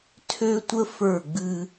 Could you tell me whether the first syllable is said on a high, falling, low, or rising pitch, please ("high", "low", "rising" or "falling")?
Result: high